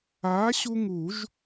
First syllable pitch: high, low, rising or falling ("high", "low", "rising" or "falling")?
rising